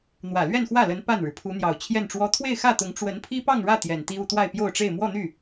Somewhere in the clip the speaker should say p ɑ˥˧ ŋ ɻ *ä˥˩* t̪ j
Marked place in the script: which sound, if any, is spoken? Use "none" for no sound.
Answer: ä˥˩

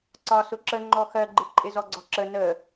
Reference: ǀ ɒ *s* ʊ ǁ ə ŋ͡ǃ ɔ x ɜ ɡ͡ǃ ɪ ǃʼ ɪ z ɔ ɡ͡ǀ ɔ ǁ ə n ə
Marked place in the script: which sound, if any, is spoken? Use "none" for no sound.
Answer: s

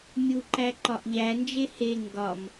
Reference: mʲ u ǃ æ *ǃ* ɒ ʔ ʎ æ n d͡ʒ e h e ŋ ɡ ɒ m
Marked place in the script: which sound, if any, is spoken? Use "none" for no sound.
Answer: ǃ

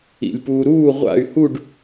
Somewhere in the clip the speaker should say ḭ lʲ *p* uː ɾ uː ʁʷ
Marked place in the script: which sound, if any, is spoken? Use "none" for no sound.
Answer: p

